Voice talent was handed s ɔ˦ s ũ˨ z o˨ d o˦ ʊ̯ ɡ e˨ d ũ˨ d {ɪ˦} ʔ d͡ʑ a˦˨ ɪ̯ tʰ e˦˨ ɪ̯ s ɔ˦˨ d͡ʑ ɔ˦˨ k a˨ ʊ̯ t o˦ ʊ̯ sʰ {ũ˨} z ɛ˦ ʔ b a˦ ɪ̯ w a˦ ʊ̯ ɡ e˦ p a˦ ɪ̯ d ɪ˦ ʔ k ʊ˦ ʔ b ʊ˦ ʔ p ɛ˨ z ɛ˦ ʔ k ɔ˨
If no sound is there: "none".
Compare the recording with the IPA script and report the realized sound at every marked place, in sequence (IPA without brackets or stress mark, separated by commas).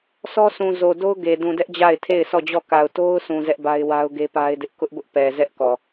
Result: ɛ˦, ũ˨